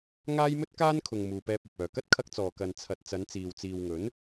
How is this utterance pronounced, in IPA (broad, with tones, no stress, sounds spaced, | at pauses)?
ŋ aː˥ j m ɵ˥ t̚ k aː˥ n kʰ ʊ˨ ŋ m uː˨ p ɛː˧ p̚ ɐ˨ p̚ œː˨˩ k ɐ˥ t̚ kʰ ɐ˧ k̚ t͡s ɔː˨˩ k ɐ˨ n t͡sʰ ɐ˨ t̚ t͡s ɐ˨˧ n t͡s iː˨ w t͡s iː˨ w ŋ ɵ˨˥ n